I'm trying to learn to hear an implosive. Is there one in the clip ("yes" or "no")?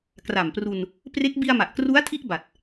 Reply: no